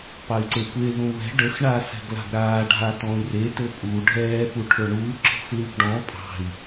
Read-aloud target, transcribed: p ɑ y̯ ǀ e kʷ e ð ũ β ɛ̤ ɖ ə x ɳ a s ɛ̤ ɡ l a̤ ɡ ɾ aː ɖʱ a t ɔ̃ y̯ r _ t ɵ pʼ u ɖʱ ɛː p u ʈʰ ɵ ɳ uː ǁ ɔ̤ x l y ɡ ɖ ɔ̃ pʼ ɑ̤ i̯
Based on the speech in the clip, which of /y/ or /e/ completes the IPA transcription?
e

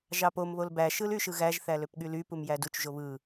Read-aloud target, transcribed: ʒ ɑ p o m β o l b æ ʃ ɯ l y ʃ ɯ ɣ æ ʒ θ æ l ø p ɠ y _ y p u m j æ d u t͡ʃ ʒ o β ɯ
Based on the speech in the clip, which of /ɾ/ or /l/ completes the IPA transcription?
l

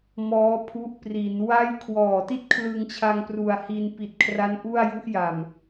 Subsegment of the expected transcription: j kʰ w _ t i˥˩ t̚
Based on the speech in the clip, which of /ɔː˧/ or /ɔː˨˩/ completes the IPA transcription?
ɔː˨˩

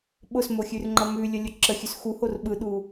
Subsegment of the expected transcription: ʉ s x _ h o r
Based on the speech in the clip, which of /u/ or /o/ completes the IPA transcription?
u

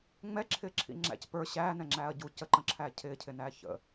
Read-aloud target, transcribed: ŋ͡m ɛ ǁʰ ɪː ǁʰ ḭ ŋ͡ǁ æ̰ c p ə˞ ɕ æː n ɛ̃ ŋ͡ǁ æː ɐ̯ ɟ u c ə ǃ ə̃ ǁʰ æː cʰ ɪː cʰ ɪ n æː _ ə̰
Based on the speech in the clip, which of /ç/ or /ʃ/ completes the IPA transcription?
ç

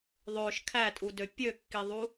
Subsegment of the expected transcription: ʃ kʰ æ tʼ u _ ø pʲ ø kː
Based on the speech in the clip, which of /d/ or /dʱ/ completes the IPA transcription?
d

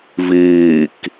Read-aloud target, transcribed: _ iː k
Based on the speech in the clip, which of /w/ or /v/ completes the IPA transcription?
v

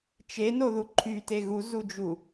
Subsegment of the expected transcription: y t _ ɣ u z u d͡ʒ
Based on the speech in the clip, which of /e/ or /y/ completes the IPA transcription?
e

